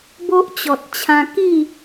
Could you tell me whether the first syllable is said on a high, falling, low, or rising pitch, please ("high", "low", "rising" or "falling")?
high